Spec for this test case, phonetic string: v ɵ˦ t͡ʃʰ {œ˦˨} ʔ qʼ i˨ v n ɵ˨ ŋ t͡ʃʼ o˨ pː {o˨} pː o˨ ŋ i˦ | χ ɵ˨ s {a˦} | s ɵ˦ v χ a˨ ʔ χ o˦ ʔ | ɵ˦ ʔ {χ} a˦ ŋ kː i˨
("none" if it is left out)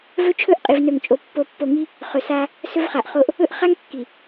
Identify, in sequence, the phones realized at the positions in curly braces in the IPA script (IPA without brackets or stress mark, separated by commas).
ɵ˦˨, o˨, a˦, χ